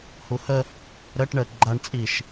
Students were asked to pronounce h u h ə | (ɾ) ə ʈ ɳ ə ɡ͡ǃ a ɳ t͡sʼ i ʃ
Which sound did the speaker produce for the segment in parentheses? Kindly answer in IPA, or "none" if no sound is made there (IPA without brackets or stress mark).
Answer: ɾ